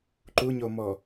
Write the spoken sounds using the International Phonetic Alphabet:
ǃuɲomɔ

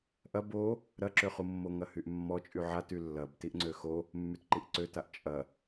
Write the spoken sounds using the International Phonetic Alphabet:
ʔɐ bo | ɾɐǁøχumːo ŋɐhyʔmːɔ t͡ʃʼyʕaty lːɐb tiʔŋ͡ǀøxo | mːytǃiʔǀøtaʔ t͡ʃʼɐ

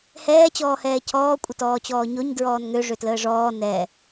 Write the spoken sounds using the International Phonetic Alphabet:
hɛː t͡ɕɔːhɛːcʰɔː kʷʼətɔːt͡ɕɔːɲoɲ dɹɔːnŋø ʐøtləːʐɔː nɛ

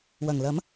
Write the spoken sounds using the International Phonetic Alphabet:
wɐ˨˩ŋlɐ˨˥m

